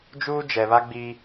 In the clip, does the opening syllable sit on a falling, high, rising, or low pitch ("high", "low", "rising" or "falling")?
high